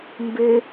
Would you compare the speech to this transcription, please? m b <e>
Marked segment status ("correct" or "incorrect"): correct